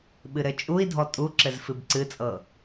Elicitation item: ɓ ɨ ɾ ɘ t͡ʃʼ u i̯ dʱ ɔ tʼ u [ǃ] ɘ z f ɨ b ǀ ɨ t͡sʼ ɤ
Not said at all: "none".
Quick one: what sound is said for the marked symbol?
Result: ǁ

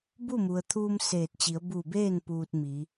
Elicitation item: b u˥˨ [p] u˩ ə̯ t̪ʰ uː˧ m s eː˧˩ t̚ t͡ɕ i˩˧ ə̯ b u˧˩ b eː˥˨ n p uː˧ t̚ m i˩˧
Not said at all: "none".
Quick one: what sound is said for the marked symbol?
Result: m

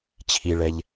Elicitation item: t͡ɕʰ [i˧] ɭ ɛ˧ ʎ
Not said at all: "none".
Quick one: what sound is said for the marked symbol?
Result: i˧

